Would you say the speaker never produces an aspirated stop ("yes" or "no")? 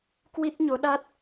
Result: yes